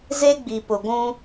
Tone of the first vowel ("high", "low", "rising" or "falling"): high